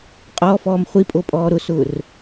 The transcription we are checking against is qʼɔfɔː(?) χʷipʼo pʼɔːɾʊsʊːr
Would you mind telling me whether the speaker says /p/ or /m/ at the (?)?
m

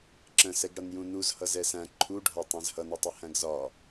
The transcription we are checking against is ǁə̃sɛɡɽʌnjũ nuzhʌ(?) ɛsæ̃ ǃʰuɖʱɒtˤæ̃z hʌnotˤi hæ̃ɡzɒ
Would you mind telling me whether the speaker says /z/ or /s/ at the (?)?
z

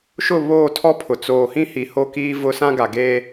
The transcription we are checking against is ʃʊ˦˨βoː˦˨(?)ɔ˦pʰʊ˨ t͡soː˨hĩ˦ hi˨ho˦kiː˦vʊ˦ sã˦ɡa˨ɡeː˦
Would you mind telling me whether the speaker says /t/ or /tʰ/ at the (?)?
tʰ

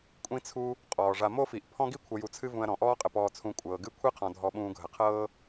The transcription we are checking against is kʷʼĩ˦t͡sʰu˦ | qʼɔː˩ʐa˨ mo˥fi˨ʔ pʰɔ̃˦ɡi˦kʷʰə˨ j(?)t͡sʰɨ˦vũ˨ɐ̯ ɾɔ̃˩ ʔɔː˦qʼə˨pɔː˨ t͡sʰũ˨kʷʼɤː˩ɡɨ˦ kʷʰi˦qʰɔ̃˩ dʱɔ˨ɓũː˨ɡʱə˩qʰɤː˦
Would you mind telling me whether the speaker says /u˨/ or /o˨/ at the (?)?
u˨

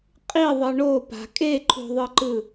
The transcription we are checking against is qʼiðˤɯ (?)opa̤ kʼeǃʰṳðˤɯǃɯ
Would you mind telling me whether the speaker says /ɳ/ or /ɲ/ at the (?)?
ɳ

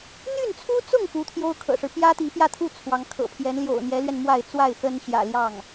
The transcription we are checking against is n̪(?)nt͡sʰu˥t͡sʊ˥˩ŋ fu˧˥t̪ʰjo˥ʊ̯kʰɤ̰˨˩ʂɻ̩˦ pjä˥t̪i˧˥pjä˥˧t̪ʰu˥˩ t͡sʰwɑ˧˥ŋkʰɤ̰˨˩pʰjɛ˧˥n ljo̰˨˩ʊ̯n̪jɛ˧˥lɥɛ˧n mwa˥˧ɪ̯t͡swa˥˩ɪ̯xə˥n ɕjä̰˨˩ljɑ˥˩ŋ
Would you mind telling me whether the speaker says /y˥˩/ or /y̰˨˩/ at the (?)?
y˥˩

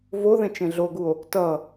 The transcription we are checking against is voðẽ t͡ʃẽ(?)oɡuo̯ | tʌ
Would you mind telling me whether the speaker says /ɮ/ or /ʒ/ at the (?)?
ɮ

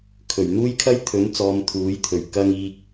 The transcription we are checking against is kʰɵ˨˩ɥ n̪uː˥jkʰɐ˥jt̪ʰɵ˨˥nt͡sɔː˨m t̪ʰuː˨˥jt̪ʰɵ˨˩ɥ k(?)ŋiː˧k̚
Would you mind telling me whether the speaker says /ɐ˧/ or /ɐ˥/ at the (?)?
ɐ˧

